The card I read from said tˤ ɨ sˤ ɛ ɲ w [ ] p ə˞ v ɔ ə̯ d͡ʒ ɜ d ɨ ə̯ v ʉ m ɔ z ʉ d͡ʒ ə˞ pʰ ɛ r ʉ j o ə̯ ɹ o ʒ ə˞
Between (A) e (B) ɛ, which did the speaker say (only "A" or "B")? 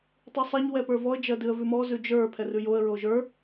B